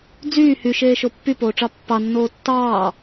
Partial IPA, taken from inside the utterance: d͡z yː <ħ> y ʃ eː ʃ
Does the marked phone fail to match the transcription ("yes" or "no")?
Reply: yes